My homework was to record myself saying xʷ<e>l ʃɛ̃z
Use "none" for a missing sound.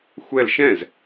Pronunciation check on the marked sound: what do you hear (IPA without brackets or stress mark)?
ɛ